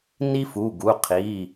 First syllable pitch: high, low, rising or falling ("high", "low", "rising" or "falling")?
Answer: high